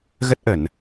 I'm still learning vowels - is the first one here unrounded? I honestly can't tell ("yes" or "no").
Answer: yes